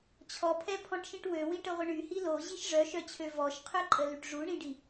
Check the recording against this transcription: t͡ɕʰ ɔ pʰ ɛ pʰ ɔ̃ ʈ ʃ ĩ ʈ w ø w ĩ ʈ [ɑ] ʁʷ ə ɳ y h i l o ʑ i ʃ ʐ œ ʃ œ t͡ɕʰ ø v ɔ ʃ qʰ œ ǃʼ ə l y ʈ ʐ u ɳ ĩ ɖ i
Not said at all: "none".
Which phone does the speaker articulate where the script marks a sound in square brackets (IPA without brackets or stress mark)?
ə